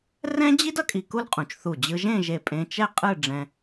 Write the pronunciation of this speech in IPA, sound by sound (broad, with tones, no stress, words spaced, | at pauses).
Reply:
rɛ̃˥d͡ʑi˥d ʌ˩˧kʼi˧ku˥lqʼũ˩˧t͡ʃ θu˧˩ d͡ʑɯ˧ʒẽ˥˧ʒe˧˩ pʼẽ˧t͡ʃɛ˥˧qʼɯ˥˧ ɖ͡ʐɛ̃˧